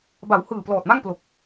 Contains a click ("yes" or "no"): no